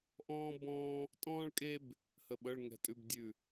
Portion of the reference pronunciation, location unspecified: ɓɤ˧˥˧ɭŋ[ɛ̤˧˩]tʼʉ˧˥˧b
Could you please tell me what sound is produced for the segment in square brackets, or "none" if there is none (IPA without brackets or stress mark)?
ɛ̤˧˩